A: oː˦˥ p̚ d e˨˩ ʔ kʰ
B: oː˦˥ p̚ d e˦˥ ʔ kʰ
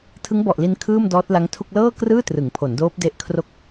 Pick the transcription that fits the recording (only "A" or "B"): B